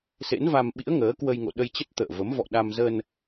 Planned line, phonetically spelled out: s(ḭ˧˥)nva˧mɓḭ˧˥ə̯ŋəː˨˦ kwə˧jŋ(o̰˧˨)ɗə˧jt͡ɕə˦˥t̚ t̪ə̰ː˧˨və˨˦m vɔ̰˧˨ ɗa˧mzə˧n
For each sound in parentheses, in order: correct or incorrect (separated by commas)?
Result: incorrect, correct